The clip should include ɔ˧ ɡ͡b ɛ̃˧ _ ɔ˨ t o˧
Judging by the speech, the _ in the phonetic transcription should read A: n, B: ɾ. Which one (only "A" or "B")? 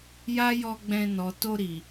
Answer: A